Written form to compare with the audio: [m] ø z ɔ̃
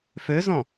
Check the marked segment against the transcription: incorrect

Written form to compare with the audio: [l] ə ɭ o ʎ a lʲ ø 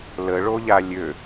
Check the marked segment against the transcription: correct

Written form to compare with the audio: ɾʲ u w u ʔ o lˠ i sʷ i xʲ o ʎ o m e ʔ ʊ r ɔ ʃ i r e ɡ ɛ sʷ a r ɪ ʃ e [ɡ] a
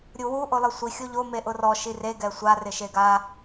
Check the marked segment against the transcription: correct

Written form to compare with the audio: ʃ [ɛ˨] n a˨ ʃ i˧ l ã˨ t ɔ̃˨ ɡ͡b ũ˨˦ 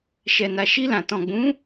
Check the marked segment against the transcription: correct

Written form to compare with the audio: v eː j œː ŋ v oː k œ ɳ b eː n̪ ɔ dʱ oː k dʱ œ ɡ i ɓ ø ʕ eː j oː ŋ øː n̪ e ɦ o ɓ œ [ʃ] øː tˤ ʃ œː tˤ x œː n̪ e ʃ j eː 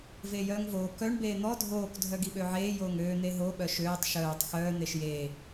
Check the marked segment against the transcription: correct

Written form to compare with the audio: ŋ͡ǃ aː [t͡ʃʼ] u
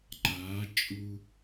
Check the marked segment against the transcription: correct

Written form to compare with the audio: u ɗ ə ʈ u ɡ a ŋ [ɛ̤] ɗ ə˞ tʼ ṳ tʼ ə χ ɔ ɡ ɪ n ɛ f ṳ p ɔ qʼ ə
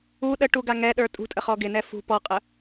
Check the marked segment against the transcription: incorrect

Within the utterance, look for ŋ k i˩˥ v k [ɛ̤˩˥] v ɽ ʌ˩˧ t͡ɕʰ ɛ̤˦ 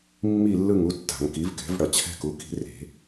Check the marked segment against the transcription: correct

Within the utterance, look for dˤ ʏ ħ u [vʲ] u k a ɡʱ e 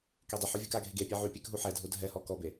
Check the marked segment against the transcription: correct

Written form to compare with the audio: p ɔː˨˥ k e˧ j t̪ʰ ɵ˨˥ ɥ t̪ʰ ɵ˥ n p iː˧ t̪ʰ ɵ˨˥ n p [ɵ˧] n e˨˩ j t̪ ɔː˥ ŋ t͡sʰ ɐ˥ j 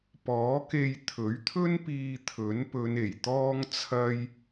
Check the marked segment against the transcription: incorrect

